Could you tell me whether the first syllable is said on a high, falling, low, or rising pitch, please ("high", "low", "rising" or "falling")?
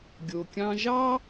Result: low